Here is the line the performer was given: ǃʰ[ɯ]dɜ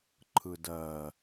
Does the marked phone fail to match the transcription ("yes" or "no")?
no